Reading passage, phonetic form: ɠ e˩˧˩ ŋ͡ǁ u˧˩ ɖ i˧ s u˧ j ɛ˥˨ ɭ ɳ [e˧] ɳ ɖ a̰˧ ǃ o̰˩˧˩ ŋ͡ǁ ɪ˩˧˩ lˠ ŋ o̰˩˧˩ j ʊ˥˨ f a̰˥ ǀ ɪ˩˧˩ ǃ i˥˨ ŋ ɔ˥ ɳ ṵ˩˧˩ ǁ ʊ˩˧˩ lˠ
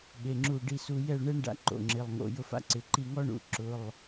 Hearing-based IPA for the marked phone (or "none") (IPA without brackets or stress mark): e˥